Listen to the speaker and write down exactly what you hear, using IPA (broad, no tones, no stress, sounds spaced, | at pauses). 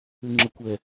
ʉ ŋ͡ǁ ə kʷ ɛ